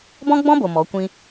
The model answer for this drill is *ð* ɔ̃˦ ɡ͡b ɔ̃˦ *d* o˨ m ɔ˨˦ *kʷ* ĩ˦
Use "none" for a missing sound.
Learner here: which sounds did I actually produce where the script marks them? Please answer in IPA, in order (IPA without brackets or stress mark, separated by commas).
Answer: b, b, kʷ